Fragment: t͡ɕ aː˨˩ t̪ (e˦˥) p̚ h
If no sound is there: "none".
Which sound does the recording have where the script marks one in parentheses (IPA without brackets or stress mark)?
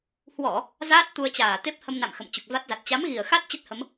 e˦˥